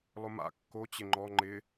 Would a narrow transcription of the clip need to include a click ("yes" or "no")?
yes